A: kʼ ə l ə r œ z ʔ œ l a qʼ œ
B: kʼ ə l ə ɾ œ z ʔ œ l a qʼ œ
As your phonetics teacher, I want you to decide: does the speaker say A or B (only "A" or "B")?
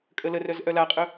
A